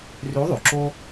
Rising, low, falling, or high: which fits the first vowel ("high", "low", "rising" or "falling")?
rising